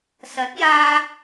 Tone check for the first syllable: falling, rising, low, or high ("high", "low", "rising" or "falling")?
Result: rising